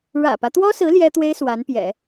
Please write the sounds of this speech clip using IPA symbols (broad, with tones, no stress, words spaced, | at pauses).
ɻä̰˨˩pä˦t̪wɔ˥sɹ̩˧˥ ljɛ˥t̪we˥ɪ̯ swa˧˥npjɛ̰˨˩˦